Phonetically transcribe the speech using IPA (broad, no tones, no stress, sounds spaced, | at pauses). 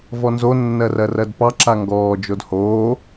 v ɔ n z o nː ɜ r ɜ r ɜ d p ɑ ǁ a ŋ ɡ ɔː d͡ʒ o d h oː